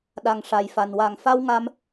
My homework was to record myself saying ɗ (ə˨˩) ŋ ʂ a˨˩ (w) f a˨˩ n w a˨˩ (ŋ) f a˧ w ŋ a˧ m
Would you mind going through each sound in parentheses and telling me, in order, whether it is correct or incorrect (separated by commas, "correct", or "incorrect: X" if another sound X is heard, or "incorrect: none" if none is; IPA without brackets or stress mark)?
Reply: incorrect: a˨˩, incorrect: j, correct